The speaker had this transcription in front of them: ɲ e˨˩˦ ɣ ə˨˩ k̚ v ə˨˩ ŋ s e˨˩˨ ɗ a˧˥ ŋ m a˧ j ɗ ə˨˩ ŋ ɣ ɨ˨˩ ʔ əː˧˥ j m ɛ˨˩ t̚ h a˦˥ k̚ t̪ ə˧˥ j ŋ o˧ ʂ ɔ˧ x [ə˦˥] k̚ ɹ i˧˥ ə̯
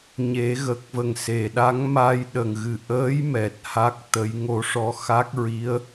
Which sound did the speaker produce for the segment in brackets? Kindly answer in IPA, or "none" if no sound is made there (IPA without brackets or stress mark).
a˦˥